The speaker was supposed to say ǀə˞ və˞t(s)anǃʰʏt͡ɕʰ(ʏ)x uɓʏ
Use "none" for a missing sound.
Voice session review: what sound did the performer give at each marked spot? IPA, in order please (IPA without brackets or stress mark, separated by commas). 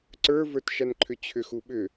ʃ, ʏ